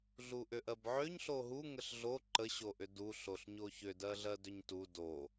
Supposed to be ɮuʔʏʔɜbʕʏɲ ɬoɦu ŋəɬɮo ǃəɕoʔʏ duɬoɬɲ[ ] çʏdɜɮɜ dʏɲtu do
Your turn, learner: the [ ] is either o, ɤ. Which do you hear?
o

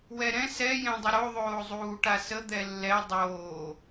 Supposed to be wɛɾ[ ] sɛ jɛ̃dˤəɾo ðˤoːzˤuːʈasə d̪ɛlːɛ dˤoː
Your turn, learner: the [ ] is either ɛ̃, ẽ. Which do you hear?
ɛ̃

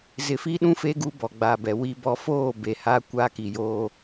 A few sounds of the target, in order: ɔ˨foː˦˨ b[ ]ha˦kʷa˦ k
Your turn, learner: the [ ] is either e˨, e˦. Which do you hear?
e˨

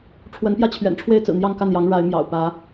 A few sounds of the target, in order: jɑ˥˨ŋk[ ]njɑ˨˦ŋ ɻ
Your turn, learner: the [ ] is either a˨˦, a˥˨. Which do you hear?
a˥˨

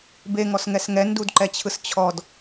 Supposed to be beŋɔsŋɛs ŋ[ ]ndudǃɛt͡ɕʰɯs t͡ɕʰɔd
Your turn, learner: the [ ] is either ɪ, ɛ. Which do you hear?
ɛ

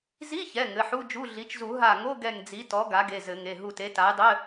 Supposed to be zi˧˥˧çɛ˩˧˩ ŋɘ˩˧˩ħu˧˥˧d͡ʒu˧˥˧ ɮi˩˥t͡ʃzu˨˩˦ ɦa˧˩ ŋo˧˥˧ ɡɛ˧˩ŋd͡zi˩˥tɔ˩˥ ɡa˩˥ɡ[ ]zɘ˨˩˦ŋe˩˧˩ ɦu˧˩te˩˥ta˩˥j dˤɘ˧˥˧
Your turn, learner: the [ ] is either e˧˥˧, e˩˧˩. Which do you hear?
e˩˧˩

